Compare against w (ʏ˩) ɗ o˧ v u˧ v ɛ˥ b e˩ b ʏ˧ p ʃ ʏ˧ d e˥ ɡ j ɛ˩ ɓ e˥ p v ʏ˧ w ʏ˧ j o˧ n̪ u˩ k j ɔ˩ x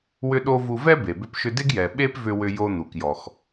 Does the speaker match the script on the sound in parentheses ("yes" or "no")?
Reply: no